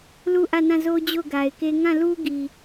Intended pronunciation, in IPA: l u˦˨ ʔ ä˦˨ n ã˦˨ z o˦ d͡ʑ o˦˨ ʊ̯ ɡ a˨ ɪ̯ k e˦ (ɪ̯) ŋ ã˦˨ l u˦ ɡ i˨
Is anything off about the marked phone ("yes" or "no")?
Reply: yes